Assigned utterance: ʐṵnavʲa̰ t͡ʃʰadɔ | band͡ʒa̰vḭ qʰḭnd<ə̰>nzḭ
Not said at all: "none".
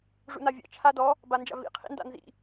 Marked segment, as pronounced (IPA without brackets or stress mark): a̰